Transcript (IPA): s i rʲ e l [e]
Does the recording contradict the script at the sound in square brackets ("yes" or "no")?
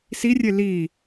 yes